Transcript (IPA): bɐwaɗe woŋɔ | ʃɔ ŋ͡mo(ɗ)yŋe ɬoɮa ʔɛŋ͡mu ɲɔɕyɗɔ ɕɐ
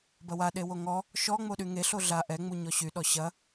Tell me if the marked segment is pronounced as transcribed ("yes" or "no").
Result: yes